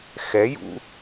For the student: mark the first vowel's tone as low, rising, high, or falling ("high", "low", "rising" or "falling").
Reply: rising